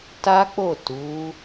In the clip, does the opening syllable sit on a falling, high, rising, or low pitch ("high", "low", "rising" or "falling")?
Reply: high